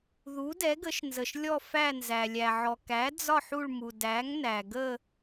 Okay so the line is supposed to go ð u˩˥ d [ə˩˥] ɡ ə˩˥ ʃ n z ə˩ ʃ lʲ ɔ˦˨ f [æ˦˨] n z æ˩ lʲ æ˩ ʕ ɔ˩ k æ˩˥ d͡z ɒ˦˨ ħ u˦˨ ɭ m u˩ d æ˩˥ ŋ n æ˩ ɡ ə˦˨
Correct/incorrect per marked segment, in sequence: incorrect: ɛ˩˥, correct

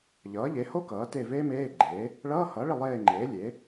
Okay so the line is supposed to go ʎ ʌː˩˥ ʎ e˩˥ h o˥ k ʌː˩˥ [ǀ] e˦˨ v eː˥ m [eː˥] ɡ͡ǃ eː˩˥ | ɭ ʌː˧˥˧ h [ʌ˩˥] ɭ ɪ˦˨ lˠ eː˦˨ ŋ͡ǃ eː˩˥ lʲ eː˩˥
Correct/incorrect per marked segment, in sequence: incorrect: t, incorrect: eː˧˥˧, correct

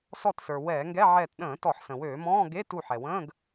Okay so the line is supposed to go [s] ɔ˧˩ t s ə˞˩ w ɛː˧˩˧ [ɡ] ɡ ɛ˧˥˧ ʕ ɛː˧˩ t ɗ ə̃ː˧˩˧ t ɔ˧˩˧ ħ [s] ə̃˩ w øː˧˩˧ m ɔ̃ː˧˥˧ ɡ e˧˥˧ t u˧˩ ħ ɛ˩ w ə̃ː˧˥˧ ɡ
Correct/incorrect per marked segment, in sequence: correct, incorrect: ŋ, correct

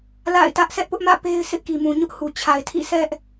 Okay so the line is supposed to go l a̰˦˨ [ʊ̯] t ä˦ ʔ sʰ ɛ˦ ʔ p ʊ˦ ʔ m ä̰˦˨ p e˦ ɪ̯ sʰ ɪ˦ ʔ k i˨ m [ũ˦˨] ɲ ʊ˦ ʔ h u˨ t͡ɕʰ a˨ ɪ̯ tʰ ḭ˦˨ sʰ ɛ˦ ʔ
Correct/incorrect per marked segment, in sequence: incorrect: ɪ̯, incorrect: ũ˨

